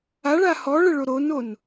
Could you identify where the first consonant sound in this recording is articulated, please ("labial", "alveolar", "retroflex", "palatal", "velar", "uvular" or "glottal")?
retroflex